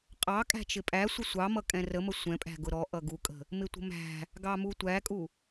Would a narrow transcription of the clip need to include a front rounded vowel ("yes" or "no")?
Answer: no